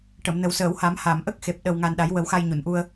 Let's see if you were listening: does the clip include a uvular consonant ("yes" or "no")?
no